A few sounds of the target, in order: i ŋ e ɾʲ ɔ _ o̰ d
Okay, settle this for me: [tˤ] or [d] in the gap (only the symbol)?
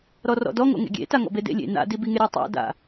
tˤ